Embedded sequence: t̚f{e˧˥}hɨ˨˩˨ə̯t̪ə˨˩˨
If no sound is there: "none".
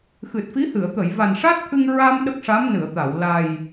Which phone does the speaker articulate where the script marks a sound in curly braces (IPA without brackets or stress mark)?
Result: i˧˥